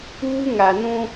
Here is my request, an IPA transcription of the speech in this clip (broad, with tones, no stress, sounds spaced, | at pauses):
uː˦ ŋ a˨ n ũ˦